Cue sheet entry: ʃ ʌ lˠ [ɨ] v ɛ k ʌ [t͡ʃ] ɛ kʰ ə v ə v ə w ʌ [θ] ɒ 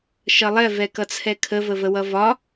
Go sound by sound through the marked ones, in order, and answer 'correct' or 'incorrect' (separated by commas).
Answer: incorrect, incorrect, incorrect